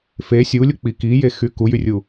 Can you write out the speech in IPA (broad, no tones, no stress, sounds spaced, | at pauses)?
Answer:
f e sʲ u lʲ u k͡p i k i j e x y k u j y rʲ u